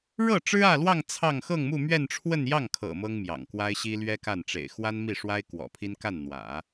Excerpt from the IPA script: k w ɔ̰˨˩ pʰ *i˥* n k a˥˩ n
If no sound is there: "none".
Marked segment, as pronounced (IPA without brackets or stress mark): i˥